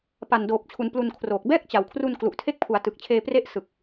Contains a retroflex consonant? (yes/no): no